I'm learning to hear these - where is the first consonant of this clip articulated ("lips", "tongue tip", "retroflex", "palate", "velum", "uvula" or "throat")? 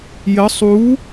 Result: palate